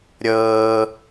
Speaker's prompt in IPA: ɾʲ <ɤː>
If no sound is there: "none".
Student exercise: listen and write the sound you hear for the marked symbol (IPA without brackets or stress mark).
ɤː